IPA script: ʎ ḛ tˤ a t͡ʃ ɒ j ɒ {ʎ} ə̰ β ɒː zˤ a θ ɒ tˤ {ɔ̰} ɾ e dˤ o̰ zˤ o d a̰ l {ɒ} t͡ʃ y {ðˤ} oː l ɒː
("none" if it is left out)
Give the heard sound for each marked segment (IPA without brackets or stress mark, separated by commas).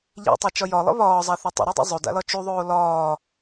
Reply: lˠ, ə̰, ɒ, ðˤ